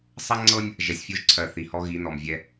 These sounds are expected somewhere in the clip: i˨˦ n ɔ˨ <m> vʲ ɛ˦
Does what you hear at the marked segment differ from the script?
no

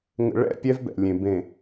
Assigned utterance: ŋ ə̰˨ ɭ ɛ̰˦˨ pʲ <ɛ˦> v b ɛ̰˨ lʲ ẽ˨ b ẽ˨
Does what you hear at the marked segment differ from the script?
no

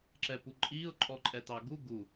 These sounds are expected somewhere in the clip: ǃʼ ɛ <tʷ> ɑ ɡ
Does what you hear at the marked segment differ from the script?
yes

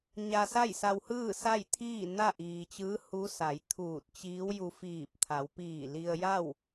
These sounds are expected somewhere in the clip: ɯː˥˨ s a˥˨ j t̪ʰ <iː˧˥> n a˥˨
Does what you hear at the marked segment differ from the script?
yes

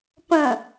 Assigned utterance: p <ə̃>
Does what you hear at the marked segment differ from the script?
no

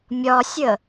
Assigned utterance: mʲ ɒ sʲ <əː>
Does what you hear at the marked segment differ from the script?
yes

